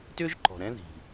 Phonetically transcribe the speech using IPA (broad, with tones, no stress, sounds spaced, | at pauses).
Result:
t ʏ˥ ʒ ǃ ɔ̤˨ ɾ ɛ̃˦ ð i̤˨